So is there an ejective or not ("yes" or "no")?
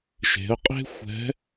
yes